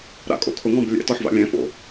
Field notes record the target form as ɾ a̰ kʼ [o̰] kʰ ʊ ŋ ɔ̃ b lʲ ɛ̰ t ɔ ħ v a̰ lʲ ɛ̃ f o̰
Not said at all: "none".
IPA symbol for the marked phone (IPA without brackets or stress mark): o̰